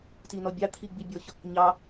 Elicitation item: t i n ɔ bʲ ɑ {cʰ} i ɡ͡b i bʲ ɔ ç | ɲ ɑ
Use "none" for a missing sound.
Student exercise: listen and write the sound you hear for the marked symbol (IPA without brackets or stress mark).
t̪ʰ